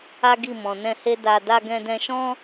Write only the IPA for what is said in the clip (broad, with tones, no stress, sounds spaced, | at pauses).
a˦ ɡ i˦˨ m ɔ̃˨ n ɛ̃˧ h e˦ d a˧ d a˧ ɡ ɛ̃˧ d ɛ̃˧ ʃ ɔ̃˦